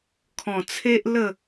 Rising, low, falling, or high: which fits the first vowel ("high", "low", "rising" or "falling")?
low